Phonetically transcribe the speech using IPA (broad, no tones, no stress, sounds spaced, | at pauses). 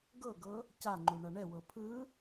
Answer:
ɡ ɤ ɡ ɤ | c a ŋ͡ǃ u ɳ a ɳ ɛ w ɤ pʰ ɯ